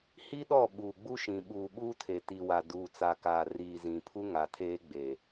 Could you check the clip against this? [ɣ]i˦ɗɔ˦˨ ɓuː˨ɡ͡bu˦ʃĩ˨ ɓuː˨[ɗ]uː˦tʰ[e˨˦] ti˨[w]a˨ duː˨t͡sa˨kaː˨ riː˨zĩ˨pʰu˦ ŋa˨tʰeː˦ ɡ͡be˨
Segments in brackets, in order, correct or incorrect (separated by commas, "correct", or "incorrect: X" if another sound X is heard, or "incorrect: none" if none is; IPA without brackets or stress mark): incorrect: h, incorrect: ɓ, incorrect: e˨, correct